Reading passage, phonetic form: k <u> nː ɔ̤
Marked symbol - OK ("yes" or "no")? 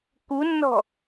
yes